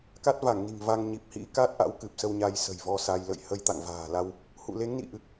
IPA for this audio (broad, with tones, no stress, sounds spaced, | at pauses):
k a˦˥ t̚ v a˧˩ ŋ n i̤˨˩ ŋ v a˧ ŋ ɲ i˨˩ p̚ h ḭ˧˥ k a˦˥ t̚ ʔ a̰˧˥ w k ɨ˨˩ p̚ s ə˧ w ɲ a˧ j s ə̤˨˩ j v ɔ˧ s a˧ j l ə̰˧˨ j h ə˧ j t̪ a̰˧˨ ŋ v a̤ː˨˩ l a˧ w | h ṵ˧˨ l e˨˦ ŋ n ḭ˧˨ ʔ ɨ˨˩ k̚